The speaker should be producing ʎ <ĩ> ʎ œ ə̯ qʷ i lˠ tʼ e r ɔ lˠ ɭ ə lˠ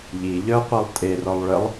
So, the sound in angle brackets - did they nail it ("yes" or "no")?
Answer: no